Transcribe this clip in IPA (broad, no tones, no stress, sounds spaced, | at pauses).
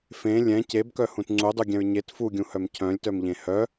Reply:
f ẽ lʲ ɛ̃ c e b k œ h ũ t ŋ͡ǀ u dˤ u ɡʲ ɛ̃ ɹ ɲ e t f u ɡʲ ũ h œ m cʰ œ̃ lʲ t œ m ʎ ẽ h œ